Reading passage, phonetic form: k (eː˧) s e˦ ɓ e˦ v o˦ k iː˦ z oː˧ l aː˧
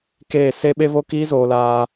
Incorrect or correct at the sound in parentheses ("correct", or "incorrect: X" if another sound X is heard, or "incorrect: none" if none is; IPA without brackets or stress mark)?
incorrect: eː˦˨